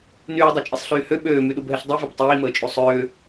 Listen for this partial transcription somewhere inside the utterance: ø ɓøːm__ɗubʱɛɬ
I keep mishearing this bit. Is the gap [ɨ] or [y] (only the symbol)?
y